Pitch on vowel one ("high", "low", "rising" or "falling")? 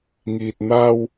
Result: low